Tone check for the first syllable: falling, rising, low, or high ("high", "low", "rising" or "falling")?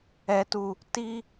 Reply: high